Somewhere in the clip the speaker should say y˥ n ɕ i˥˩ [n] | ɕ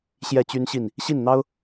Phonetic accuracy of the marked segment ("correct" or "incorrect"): correct